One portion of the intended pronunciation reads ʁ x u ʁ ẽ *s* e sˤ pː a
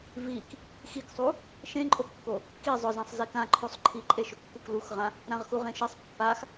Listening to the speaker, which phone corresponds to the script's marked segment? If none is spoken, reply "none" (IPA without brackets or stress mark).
ʃ